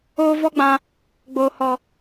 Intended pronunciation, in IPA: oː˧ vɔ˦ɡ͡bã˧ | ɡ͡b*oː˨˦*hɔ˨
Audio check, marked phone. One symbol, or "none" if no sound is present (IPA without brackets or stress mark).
oː˨